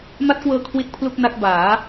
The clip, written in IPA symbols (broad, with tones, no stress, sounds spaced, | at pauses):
m a˦˥ t̚ k w ɤː˧ kʰ w i˥˩ t̚ pʰ l u˥˩ k̚ n a˦˥ k̚ b aː˩˦